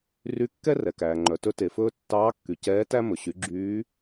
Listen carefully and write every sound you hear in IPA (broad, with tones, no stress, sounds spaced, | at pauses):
r y˧˥ kː ɛ˥ r ɛ˩ k æː˩ ŋ͡ǃ œ˩ t ɵ˧˥ t e˩ f ɵː˧ tː ɑː˧˥ kː y˩ c ɛː˧˥ t æ˥ m ɵ˩ ɕ y˩˧ ɡ͡ǁ yː˧˥